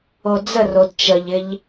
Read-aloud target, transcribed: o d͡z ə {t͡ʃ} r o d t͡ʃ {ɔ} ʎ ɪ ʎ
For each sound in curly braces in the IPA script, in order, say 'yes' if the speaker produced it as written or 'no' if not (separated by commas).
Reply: no, no